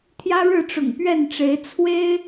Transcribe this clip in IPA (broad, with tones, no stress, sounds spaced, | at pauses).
t̪ʰ j ä˦ ɻ ɻ̩˥˨ ʈ͡ʂ ʊ̰˨˩ ŋ p ɥ ɛ˥˨ n ʈ͡ʂ e˨˦ ɪ̯ t͡sʰ w e˦ ɪ̯